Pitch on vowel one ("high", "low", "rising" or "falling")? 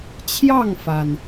falling